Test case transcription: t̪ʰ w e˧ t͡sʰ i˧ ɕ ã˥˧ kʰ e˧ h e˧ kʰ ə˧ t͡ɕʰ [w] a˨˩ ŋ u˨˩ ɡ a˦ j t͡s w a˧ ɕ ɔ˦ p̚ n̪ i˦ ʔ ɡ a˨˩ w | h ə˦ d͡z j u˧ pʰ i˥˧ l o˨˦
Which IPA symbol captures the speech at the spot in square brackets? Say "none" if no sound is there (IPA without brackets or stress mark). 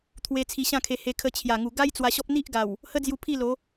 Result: j